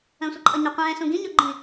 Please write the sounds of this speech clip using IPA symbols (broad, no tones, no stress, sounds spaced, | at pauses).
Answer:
ə̃ sʷ ə ǃʼ ʌ ɲ ʌ qʷ ɛ̃ː s ũ ɡ ĩ ɲ ɔ ɡ͡ǃ ĩ